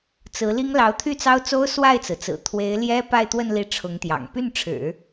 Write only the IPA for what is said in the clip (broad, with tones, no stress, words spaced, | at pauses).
t͡sɹ̩˧˥li˥ŋ lɑ˧˥ʊ̯t̪ʰy˥˩t͡sɑ˥ʊ̯t͡so˥ʊ̯ swa˥˩ɪ̯t͡sɹ̩˩t͡sɹ̩˨˩ t̪ʰwe˧˥ɪ̯ ljɛ˥ pa˥˧ɪ̯t̪wə˥˧n li˥˩ʈ͡ʂʰʊ˧˥ŋt̪jɑ̰˨˩ŋ py˥˩nʈ͡ʂʰɻ̩˨˩˦